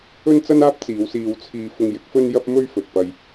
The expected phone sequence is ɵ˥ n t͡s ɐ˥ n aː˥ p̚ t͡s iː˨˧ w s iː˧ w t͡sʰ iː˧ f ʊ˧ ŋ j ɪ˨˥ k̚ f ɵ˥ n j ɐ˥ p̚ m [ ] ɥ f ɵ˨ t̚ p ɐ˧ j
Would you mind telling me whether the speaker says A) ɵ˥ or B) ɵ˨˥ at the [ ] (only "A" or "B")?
A